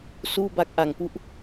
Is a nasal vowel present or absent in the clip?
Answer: absent